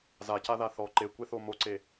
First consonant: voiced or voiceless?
voiced